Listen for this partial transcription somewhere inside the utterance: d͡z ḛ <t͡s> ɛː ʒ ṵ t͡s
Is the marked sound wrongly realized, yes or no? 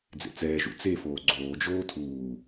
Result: no